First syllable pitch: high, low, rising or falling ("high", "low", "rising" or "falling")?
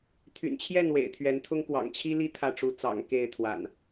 low